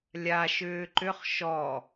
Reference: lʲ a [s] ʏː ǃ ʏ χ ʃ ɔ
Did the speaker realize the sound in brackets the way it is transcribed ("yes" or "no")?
no